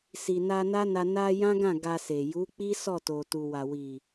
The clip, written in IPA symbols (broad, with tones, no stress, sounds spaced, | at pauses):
s i˨ n a˧ n a˦ n a˧ n a˧ j ã˦ ɡ ã˦˨ ɡ a˧ s e˨ j u˨˦ k͡p i˦ s ɔ˦˨ t o˨ t u˨ w a˨ w i˨